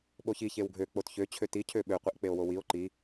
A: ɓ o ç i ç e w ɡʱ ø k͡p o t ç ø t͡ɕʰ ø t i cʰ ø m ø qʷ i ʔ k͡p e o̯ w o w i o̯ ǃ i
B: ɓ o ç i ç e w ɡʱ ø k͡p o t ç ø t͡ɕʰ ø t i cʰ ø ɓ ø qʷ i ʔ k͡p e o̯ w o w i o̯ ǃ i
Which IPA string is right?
B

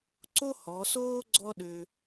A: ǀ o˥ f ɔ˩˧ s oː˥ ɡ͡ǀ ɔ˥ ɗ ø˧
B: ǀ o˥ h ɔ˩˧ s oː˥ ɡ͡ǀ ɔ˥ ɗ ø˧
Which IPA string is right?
B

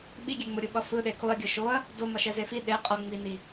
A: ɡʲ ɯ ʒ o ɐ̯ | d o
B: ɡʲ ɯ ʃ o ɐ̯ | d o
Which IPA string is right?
B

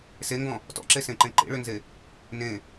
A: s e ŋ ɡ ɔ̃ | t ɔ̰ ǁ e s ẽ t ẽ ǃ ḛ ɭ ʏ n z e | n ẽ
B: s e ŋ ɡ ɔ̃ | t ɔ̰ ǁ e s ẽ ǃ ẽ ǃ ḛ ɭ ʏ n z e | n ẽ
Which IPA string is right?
B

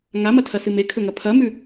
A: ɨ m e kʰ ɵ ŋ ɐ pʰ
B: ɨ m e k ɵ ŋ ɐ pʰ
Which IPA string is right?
A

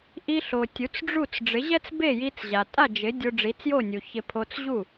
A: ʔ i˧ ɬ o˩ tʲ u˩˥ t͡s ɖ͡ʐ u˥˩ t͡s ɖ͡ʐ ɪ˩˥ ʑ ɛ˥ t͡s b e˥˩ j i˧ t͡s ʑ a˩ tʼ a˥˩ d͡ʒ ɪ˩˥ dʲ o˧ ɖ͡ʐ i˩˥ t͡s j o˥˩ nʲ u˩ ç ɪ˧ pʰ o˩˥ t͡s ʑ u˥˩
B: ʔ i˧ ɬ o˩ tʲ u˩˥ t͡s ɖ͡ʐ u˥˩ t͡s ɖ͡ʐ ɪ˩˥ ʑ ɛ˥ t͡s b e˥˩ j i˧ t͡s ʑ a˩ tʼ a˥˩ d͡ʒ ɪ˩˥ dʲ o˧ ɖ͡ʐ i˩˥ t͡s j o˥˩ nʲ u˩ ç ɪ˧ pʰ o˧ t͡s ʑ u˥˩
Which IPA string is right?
B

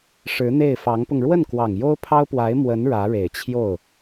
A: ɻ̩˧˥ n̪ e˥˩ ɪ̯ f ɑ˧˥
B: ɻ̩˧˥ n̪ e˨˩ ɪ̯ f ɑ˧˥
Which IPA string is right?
A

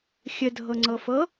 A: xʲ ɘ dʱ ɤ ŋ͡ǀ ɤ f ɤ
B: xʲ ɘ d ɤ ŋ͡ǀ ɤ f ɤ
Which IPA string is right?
A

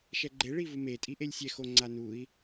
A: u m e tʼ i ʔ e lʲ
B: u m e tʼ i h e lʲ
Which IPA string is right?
A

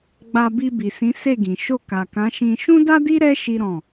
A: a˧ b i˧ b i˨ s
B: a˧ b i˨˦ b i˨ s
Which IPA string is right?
A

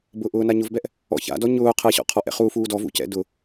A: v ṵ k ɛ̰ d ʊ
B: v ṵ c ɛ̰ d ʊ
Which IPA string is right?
B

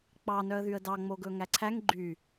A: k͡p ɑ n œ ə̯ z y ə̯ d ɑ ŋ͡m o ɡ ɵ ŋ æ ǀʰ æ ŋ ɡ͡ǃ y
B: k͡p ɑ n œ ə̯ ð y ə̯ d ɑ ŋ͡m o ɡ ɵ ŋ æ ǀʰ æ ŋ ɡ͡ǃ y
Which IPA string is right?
B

